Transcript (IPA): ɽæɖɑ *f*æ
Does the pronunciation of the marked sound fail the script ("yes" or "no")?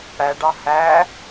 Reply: yes